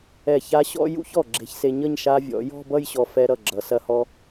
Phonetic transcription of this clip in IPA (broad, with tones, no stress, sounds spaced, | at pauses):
ɛ˧˩ ç a˧ ɕ ɔ̰˥˧ j ṵ˥˧ ç ɔ˧˩ ɡ͡ǁ e̤˧ ç s e˧ ɲ ʌ˥˧ ɲ ʃ a˧ vʲ ɔ̰˩˧ j ɔ̤˥˧ b ʌ˥˧ j ɕ ɔ˧ f ɛ˧ ɾ ʌ˧˩ ɡ͡ǁ ʌ˩˧ s ɐ˧ h ɔ˧